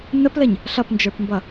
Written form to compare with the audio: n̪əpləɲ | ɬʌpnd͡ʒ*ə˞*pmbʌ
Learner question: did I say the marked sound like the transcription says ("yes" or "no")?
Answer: yes